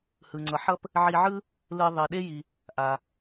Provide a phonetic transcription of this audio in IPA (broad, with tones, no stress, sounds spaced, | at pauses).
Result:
h ɯ˩ ŋ͡ǀ ʌ˩ ħ ʌ˥ p | ʕ i˧ ʕ ɯ˥ | l ɯ˧ ðˤ i˩ ɗ e˥ j i˩ | ʔ a˩